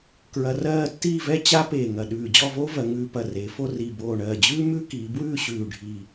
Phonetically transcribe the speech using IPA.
k ɹ ɐ˧ r ɜː˥˧ tː iː˥˧ v ɛ˥ t͡ɕ a˥ p eː˧˩ ŋ ɐ˧˩ ɗ ʉː˧˩ d͡ʑ ɔ˥˧ v oː˥ v ɜ˩˧ ŋ ʉː˧ p ɐ˧˩ r eː˩˧ f o˥˧ r i˧˩ b oː˧˩ ɳ ɜː˧˩ d͡ʑ ʉː˥ m ʉ˥ k iː˩˧ b w ʉː˥˧ ɕ ʉː˧˩ ɖʱ iː˧˩

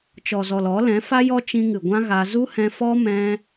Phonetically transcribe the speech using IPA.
t͡ʃ ɔ˨ z ɔ˨ l ɔ˨˦ l ɛ̃˨˦ f a˦ j ɔ˦ t͡ʃ ĩ˧ ŋ ɨ˨ ɡʷ ã˦ ɣ a˧ z u˦ h ɛ̃˧ f ɔ˦ m ɛ̃˦

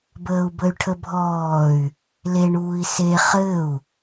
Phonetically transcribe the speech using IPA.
b əː u̯ b ə y̯ ʈʰ ə bʱ ɔː y̯ | l e ɳ uː i̯ s e χ ɘ u̯

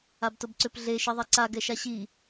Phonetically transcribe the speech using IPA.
a b t ʊ b ǀ ʏ p ɮ e ʃ i ðˤ ɛ ǀ a ɡ ɛ ʃ a ɕ i

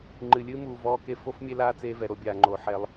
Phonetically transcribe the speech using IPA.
ŋ͡ǃ ɨ˨ lʲ ɨː˦ m uː˨ v ɔː˦ k e˦ f o˦ f mʲ e˦ l aː˦ t͡s eː˦ v ɛ˨ ɾ o˦ bʲ aː˨ ŋ͡ǃ oː˨ ħ ɛ˦ lˠ

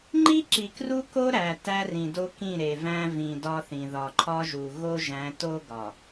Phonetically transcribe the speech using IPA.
ŋ͡ǃ i˦ ǁ i˨ k r u˦ k o˦ ɾ æ˨ t æ˦ r ĩ˨ d o˦ k ĩ˦˨ ɾ e˨ v æ̃˦ v ĩ˨ d ɒ˦ θ ĩ˨ ð ɒ˨ ǃʰ ɒ˦ ʒ u˨ ɣ o˦ ʒ æ̃˨˦ t o˦ ɡ ɒ˨

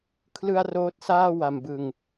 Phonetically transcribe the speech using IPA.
kʰ l ɯ˧ a̯ r oː˦˥ t̚ s aː˥˩ w a˨˩ m b ɯ˨˩ ŋ

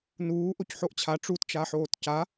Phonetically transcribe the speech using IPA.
n uː ʔ o c ħ o ʔ t͡ɕʰ a ʈ͡ʂ u t t͡ʃ a ħ oː t c a

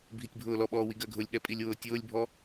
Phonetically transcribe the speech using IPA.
bʱ i tʲ bʱ ʊː l ɔ ɓ ɔː w i ɡ ɜ ɡʱ ʊ lʲ ɠ ɛ pʼ i lʲ w ʊː tʲ ʊː lʲ bʱ ɔ

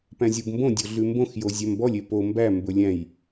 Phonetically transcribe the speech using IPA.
p æ̃ zʲ o b m b õ dʲ o ɮ ʉ m b õ x j o zʲ æ m b ɔ lʲ e p o m b æ m b ɵ lʲ æ̃ j

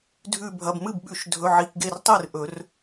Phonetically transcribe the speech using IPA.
dʱ ʉ˧˩ bʱ ɐ˩˧˩ b m ɨ˥˩ b ɓ ʉ˨˩˦ ʃ dʱ ɵ˩˧˩ ʕ i˩˧˩ k ɡ e˧˩ r tˤ ɨ˥˩ r ʔ ɵ˨˩˦ r

